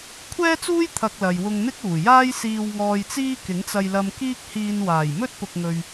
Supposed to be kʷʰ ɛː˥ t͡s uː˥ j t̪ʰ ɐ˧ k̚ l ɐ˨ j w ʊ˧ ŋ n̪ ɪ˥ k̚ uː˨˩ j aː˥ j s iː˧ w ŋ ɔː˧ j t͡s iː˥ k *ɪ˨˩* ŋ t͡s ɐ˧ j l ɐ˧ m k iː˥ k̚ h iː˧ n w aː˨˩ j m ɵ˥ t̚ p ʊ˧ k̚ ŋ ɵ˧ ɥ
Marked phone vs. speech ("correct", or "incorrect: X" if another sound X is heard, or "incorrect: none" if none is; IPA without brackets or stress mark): incorrect: ɪ˨˥